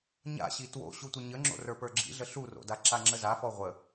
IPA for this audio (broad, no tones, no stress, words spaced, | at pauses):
ɲa̰ɕi two̰ ɕutʷəɲəŋ͡ǁo̰ rə˞pə˞ɡ͡ǁḭɮə ɬuro̰da ǁaŋ͡ǁəzafɔ ʁʷə